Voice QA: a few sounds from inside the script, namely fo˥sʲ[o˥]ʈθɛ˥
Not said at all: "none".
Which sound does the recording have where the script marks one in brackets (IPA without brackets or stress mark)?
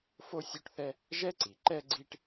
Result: o˥